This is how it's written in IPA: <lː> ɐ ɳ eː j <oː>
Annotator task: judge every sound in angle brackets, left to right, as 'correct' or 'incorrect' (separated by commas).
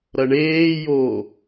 incorrect, correct